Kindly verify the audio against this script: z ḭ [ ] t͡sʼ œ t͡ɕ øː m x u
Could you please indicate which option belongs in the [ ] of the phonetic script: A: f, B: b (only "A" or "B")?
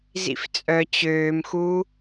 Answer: A